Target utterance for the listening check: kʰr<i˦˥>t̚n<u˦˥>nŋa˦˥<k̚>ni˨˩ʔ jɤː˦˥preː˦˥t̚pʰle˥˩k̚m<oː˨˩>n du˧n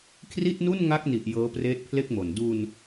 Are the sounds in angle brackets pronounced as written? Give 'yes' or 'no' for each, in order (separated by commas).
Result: no, no, yes, no